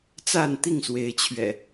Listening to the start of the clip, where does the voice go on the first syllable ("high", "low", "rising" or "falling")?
falling